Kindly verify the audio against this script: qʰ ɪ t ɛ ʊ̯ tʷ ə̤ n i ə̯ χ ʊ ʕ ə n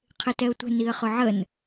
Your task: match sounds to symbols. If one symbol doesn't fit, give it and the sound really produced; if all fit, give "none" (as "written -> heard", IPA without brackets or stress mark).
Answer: none